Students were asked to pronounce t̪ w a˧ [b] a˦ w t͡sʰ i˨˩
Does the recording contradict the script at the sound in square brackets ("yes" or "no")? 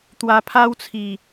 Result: yes